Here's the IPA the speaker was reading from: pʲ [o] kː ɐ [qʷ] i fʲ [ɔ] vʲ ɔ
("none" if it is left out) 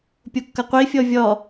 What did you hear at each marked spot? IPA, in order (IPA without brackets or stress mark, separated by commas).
o, qʷ, ɔ